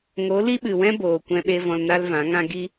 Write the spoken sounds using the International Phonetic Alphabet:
ŋ o˨˦ l i˦ ɓ ɨ˨ w ɛ̃˦ b oː˨ kʷ ɛ̃˧ ɓ e˧ v ɔ̃˧ l n a˦ l v ã˨˦ ŋ ã˦ ɡ i˦

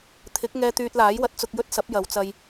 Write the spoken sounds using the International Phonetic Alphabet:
t̪ʰ ɪ˨˥ k̚ ŋ ɛː˧ t̪ yː˧ t̚ l aː˨˥ j w ɐ˨˥ t̚ t͡s ʊ˧ k̚ j ɵ˥ t̚ s ɐ˨˥ p̚ j ɐ˨˧ w t͡s ɐ˧ j

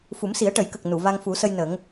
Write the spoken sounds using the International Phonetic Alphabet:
f u˨˩˦ m s i˨˩˦ ə̯ ʈ ə˨˩˦ j k ə˨˩ k̚ n u˨˩˨ v a˧ ŋ f u˨˩˦ s ə˧ j n ə˨˩˦ ŋ

